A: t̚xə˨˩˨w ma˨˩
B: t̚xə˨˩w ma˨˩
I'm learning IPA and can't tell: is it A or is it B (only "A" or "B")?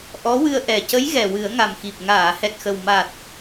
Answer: B